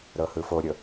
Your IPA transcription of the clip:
ɾ ɤ h ɯ f o ɾʲ ɤ

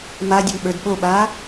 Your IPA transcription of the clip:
m a dʲ ə m ɓ ə˞ d ɓ o ɓ aː

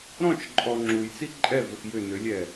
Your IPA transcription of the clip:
ɾ ɔ̃ t͡ʃ ǃʼ ɔ ŋ͡ǁ u j t͡s i ǃʼ ɛ v ɵ x j ʏ n ʏ lʲ ɛ

